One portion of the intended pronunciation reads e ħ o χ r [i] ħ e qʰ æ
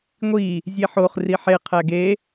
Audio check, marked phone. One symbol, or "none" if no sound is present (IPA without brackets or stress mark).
i